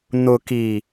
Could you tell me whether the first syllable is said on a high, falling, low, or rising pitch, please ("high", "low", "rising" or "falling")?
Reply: low